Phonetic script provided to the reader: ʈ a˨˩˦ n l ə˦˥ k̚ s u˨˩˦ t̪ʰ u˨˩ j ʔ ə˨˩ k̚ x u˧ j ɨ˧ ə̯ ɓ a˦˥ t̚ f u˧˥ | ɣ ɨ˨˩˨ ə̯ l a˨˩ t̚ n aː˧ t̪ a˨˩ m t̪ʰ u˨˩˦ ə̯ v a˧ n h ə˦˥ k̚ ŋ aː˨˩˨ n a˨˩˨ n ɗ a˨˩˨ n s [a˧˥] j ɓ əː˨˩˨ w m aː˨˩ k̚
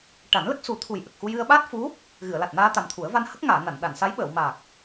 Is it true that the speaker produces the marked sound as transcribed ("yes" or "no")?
yes